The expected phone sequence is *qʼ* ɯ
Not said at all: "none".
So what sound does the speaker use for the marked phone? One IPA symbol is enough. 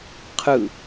qʰ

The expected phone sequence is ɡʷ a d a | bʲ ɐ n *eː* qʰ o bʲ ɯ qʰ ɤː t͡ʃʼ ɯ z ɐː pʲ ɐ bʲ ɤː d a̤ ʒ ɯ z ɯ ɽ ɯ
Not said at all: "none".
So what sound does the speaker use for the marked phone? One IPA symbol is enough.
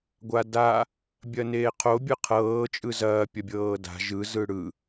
eː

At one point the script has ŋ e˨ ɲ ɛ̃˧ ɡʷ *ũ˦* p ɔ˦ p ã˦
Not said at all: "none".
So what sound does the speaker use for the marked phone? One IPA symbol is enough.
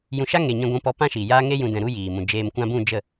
ũ˦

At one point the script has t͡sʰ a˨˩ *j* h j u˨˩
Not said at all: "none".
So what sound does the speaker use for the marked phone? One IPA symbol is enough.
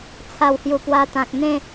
w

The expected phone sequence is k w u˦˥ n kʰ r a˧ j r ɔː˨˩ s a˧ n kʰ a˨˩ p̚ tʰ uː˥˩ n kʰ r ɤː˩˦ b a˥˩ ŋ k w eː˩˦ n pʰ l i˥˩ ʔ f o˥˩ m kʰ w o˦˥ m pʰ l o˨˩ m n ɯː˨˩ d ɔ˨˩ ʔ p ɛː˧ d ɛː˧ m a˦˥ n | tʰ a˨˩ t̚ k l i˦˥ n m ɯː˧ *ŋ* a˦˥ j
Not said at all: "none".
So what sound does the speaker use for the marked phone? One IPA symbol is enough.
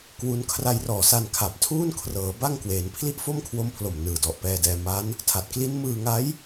ŋ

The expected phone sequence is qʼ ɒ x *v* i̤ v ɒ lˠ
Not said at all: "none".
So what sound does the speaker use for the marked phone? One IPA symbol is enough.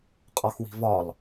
w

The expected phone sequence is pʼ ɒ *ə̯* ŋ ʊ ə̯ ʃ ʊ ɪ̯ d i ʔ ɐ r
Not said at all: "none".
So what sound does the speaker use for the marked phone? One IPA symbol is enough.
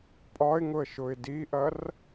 ɪ̯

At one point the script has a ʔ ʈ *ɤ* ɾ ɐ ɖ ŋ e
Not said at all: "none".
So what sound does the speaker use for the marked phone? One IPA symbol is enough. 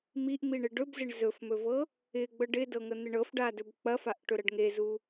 ɵ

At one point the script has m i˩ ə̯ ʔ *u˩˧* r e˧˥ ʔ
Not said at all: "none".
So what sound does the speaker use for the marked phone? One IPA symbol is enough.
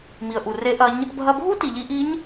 u˩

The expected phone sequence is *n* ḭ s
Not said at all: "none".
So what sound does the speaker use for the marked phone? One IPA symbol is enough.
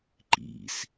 ǃ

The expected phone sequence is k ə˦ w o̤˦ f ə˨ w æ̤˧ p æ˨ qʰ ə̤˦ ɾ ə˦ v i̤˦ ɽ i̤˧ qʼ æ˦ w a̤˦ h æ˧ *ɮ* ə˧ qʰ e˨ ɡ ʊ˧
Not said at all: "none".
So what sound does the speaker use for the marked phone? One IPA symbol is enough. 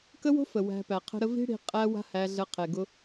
ɮ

